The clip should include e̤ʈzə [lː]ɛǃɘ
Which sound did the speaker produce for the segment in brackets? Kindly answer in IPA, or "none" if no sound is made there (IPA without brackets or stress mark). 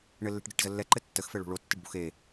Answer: lː